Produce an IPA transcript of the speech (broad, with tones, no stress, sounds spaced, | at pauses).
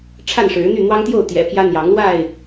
ʈ͡ʂʰ a˥˨ n ʂ ɻ̩˨˦ n̪ y˥˨ n̪ w ɑ˦ ŋ t̪ j o˥˨ ʊ̯ t̪ j ɛ̰˨˩ pʰ j ä˦ n̪ j ɑ˨˦ ŋ l w a˥˨ ɪ̯